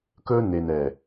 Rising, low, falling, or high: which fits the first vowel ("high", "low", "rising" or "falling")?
high